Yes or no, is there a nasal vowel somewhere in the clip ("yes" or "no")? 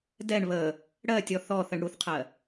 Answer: no